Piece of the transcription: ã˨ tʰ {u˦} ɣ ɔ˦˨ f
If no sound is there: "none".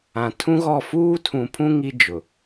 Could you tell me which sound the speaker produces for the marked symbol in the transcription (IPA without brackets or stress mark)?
ũ˦